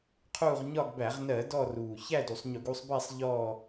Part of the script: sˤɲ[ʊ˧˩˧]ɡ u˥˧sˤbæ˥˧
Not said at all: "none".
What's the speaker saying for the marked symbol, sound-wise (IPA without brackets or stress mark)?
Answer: ʊ˧˩˧